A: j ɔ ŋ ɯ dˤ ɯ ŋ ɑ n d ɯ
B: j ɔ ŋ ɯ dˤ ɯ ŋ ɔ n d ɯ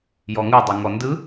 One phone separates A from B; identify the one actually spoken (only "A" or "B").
B